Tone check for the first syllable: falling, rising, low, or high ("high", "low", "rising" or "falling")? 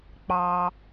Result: low